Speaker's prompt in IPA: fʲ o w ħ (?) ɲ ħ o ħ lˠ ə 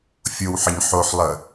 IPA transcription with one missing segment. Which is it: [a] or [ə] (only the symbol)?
ə